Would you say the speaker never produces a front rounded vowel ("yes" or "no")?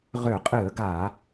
no